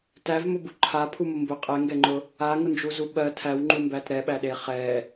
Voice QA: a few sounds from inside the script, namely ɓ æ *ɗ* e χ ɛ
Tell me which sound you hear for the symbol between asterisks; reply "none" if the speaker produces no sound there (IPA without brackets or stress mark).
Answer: ɗ